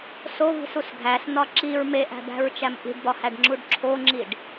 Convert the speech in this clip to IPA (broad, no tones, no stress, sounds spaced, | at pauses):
s o v i̤ s u s ɡʱ æ s n̪ ɒ ǁ i ɹ m e ʔ æ̤ b æ̤ ɹ t͡ʃ æ m ʔ i̤ ɖ b ɒ h æ ɖ ŋ͡ǁ u ɖ ǁʰ o ŋ͡ǁ i ɖ